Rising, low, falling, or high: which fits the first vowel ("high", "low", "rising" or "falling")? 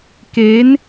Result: rising